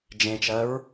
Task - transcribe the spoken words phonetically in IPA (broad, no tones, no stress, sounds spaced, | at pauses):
d͡ʒ ẽ t͡ʃ ɜ ɹ